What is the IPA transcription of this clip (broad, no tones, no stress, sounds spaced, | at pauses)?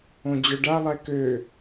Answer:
õ d͡ʑ œ ɖ a lˠ ɛ k ø